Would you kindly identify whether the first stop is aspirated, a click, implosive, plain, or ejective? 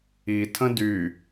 aspirated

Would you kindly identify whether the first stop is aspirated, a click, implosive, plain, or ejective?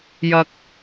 plain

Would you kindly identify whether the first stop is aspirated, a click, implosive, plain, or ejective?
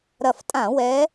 ejective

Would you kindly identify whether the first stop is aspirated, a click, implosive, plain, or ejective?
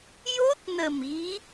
plain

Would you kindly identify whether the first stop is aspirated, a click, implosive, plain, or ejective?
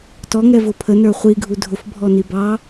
plain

